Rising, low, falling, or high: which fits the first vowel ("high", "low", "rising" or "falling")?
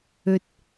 low